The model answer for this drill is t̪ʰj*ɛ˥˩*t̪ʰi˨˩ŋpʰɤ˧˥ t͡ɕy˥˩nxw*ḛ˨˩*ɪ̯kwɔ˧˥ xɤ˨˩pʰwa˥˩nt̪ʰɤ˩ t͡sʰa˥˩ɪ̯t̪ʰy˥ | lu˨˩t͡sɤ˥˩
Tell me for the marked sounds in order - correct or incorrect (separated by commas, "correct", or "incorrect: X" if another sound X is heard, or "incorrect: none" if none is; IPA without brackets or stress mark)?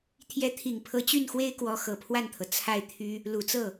incorrect: ɛ˧˥, incorrect: e˥